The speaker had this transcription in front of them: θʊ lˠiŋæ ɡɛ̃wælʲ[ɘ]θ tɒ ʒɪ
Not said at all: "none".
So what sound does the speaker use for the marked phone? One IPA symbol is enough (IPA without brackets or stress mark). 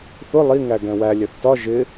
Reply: ɛ